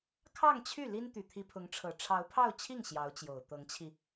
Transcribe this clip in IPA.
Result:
kʰ ɑ˥˧ ŋ t͡ɕʰ y˥˩ l i˥ n t̪ y˨˩ t̪ʰ i˧˥ pʰ ʊ˧˥ ŋ ʈ͡ʂʰ ɤ˨˩ ʈ͡ʂʰ ɑ˧˥ ʊ̯ pʰ ɑ˥˧ ʊ̯ t͡ɕʰ i˥˩ ŋ ɕ j ɑ˧˥ ʊ̯ t͡ɕ j o˨˩ ʊ̯ t̪ ɤ˧˥ ŋ t͡ɕʰ i˧

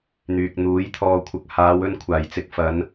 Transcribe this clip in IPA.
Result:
n̪ yː˨ k̚ n̪ uː˨˥ j t̪ʰ ɔː˨ kʷʰ ɐ˨ k̚ h aː˨˧ w ɵ˧ n kʷʰ aː˨˩ j t͡s ɪ˧ k̚ f ɐ˨˧ n

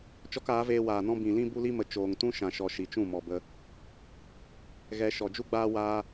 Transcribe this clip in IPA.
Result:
t͡ʃ ɔ˦ k aː˨˦ v eː˧ w aː˨ n ɔ̃˦ b ĩ˨ l ĩ˦ b u˦ l i˦ m ə˨ t͡ʃ oː˨ ŋ t ũ˦ ʃ ã˨ ʃ ɔ˨ ʃ i˨ t͡ʃ ũ˦˨ m ɔ˨ b ə˧ | ɣ ɛ˧ ʃ ɔ˨ d͡ʒ u˦ ɡ͡b aː˧ w aː˦

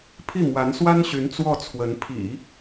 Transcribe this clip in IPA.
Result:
pʰ i˥˩ m w a˧˥ n s w a˥ n ɕ y˧˥ n t͡s w ɔ˥˩ t͡sʰ w ə˧˥ n pʰ ḭ˨˩˦

